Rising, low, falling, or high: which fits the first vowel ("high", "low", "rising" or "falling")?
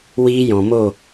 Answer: high